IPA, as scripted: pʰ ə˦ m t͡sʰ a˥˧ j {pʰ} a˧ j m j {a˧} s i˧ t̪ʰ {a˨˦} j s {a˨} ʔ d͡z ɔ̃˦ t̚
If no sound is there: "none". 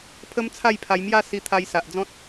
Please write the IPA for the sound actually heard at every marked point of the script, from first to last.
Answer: pʰ, a˥˧, a˧, a˨

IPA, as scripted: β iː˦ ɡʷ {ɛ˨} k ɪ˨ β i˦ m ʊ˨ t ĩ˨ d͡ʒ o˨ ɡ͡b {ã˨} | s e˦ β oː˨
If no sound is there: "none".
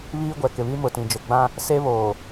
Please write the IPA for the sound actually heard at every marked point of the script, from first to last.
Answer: ɛ˨, ã˦

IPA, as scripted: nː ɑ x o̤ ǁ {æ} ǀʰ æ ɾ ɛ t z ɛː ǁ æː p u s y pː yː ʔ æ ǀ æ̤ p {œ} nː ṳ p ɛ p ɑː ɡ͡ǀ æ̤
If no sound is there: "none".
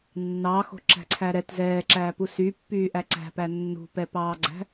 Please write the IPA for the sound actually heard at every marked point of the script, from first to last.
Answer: æ̤, æ

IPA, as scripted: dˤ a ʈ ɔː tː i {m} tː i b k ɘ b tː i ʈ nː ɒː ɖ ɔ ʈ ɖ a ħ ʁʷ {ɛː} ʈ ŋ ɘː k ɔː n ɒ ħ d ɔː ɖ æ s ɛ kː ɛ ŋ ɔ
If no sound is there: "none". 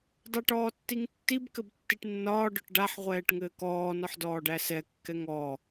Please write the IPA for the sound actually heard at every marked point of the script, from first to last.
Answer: ŋ, ɛː

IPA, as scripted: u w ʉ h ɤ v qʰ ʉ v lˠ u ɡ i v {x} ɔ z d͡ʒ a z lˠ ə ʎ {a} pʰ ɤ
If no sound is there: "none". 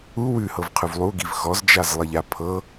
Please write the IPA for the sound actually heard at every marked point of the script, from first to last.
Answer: x, a

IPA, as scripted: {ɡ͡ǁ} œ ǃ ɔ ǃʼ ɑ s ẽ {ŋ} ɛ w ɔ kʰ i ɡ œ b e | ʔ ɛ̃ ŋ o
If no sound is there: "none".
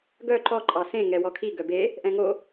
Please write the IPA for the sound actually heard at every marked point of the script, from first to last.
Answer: ɡ, ŋ

